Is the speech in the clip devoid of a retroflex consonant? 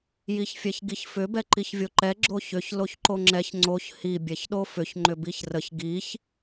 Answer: yes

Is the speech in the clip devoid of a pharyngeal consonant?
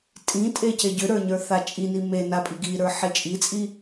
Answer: no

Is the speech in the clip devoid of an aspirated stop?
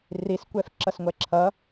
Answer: no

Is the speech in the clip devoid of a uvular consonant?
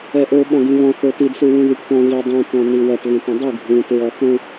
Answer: yes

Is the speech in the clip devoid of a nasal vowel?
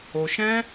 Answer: no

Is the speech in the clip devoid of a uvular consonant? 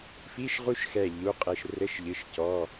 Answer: no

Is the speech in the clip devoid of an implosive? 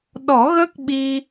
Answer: no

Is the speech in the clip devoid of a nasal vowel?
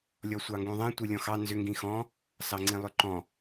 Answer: no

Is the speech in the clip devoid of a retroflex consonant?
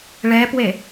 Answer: no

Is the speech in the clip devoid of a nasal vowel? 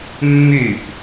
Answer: yes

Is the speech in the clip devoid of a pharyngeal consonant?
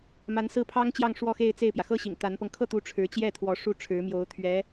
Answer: yes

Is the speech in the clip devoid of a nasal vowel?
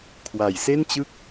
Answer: yes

